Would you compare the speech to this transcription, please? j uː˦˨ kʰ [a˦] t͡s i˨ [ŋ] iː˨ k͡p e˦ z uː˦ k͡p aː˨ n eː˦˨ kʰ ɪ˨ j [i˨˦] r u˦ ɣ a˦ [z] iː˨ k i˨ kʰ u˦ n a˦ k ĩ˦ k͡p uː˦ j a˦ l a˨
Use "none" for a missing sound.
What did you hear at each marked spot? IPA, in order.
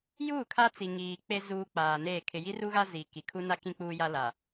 a˦, ŋ, i˦, z

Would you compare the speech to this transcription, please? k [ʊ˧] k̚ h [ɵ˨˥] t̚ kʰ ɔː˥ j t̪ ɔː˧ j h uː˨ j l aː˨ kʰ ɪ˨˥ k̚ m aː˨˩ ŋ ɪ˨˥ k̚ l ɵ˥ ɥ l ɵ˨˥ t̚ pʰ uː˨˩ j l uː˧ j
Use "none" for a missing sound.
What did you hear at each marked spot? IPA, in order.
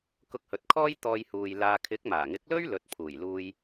ʊ˧, ɵ˨

